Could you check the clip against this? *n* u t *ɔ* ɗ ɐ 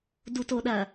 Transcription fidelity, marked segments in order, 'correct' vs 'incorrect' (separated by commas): incorrect, incorrect